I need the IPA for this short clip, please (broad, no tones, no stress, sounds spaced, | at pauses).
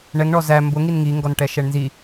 ɳ ɛ ŋ ɳ ɔ z æ m b ʊ ŋ i n ŋ i ŋ ɡ ɔ n ʈ ɛ ʃ ɛ ɳ n z i